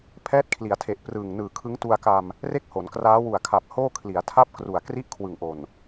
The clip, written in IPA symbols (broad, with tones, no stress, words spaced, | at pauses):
pʰɛː˦˥t̚kʰli˩˦a̯tʰe˨˩ʔ prɯː˨˩ŋnɯː˨˩ kʰɯ˦˥ŋtu˧a̯ka˧m | re˥˩k̚ho˩˦nkraː˦˥ wu˨˩a̯kʰa˨˩p̚ hoː˥˩kʰli˩˦a̯tʰa˥˩p̚kru˨˩a̯ kri˥˩ʔkʰwɯ˨˩ŋʔo˨˩n